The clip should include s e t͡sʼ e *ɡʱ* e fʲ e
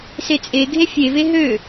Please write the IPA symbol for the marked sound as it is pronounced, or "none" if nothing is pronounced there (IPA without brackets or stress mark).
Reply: ɡʱ